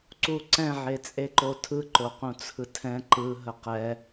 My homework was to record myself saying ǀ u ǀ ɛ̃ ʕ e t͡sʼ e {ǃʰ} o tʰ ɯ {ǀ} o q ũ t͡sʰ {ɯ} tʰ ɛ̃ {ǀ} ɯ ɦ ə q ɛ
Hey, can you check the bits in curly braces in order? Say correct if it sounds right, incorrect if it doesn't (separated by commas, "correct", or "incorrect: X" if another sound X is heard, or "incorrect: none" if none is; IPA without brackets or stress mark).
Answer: incorrect: ǃ, incorrect: ǃ, correct, incorrect: ǃ